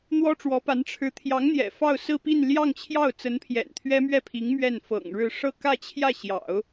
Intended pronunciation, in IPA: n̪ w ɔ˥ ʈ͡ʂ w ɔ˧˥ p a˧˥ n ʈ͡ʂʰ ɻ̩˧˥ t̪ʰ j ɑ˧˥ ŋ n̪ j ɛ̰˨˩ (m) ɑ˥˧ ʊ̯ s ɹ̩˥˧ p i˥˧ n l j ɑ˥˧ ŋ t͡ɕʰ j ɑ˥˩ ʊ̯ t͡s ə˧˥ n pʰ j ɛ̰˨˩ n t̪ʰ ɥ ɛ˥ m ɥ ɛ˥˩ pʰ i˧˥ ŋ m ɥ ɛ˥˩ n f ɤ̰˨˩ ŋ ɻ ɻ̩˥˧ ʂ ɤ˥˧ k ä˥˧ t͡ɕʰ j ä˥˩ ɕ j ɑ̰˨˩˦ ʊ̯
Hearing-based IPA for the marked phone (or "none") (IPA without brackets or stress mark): f